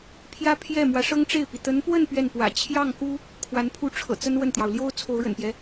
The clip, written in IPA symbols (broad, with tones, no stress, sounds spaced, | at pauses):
pʰ j ä˥ pʰ j ɛ˥˩ m w ä˧˥ ʂ ɤ˥ ŋ ʈ͡ʂ e˥˩ ɪ̯ p i˩ t̪ ə˧˥ n p w ə˥˧ n p ɥ ɛ˥˩ n p w ä̰˨˩ t͡ɕʰ j ɑ˥˩ ŋ k u˥ | kʰ w a˧˥ n pʰ u˥˩ ʈ͡ʂʰ ɤ̰˨˩ t͡s ə˥ n w ə˥˩ n t̪ j ɑ˩ ʊ̯ l j o˥ ʊ̯ t͡sʰ o˧˥ ʊ̯ ɻ ə̰˨˩ n p j ɛ˦